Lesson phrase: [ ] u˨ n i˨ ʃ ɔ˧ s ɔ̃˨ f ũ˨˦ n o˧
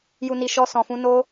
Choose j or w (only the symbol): j